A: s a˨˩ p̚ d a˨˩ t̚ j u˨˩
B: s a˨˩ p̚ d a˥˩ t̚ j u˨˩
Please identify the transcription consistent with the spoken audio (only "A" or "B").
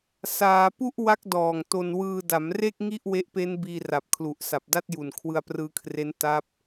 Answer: B